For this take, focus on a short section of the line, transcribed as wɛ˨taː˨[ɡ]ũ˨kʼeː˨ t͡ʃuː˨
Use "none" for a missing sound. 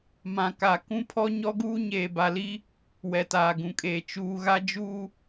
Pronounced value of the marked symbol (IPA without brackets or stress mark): ɡ